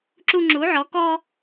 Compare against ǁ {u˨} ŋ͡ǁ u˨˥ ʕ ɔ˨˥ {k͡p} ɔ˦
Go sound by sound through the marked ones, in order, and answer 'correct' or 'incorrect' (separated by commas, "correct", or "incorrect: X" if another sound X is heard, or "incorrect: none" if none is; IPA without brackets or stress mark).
incorrect: u˦, incorrect: k